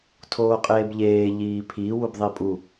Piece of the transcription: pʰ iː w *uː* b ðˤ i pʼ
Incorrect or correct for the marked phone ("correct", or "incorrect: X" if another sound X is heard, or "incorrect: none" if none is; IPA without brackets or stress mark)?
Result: incorrect: u